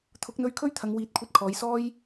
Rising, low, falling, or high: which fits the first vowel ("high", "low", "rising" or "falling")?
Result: rising